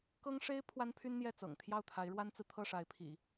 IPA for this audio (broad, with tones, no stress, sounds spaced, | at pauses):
k ɤ˥ ŋ ʂ e˥ ɪ̯ pʰ w a˥ n pʰ y˥ n n̪ j ɛ˥˩ t͡s ɤ̰˨˩ ŋ t̪ʰ j ɑ˥˩ ʊ̯ t̪ʰ a˧˥ ɪ̯ ɻ w a˥ n t͡s ɹ̩˨ t̪ʰ ɤ˥˩ ʂ a˧˥ ɪ̯ pʰ ḭ˨˩˦